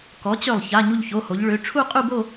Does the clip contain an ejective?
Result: yes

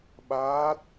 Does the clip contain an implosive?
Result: yes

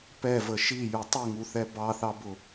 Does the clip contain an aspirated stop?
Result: no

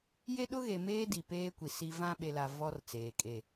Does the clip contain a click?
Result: no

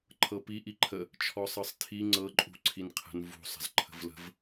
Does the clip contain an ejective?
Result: yes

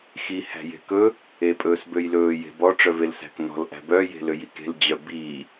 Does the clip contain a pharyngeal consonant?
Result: no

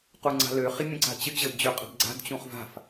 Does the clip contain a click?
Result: yes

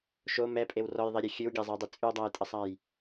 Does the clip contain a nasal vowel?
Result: no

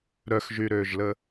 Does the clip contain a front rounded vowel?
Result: yes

